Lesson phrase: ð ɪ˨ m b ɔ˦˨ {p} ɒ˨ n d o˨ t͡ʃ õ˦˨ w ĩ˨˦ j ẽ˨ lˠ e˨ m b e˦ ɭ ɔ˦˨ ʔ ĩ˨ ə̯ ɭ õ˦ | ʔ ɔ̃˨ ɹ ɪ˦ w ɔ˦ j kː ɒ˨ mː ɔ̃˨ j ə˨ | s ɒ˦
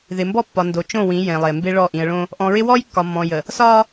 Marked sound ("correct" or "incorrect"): incorrect